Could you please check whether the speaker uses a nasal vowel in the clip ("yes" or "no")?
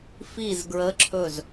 no